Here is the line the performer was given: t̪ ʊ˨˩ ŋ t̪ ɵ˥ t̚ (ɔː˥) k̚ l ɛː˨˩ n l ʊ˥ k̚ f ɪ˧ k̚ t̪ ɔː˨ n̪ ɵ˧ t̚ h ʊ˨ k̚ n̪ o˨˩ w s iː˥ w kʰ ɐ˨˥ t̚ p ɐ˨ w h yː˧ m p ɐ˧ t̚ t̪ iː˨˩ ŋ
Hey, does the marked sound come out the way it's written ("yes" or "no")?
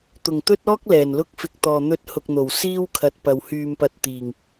yes